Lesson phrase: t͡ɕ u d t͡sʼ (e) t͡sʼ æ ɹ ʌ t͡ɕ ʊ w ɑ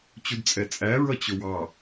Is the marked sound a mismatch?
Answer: yes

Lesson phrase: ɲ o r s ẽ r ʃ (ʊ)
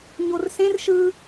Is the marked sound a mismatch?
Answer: yes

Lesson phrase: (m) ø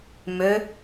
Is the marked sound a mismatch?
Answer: no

